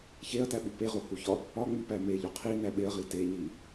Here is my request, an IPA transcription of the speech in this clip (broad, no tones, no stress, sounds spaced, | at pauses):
ç e ɐ̯ t æ ɓ u p e ʁ o h u ç ɒ | ɒ ŋ͡m i p æ m e ʎ o qʰ i n æ ɓ e ɐ̯ ʁ i t e ɲ i